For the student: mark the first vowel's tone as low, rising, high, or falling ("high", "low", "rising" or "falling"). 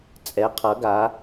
rising